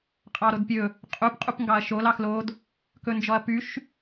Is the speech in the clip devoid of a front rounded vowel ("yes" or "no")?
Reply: no